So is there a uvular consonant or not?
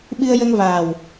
no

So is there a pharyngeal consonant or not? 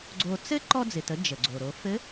no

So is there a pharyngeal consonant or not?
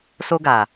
no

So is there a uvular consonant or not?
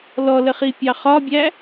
yes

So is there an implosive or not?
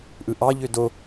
no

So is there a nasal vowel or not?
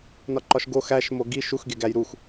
no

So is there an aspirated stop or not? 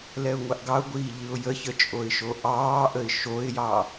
no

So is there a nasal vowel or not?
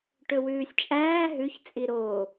no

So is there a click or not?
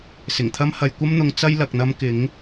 no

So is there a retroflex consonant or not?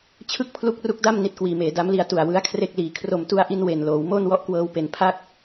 no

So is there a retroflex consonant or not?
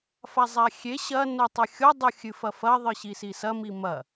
no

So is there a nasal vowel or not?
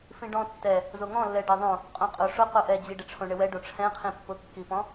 yes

